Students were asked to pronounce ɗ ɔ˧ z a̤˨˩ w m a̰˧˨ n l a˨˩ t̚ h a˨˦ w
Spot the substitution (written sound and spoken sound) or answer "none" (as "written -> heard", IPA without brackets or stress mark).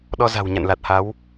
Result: m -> ɲ